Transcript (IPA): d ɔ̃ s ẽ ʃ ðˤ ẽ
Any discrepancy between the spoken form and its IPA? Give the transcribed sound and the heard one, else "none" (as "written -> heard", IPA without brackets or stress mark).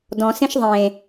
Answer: none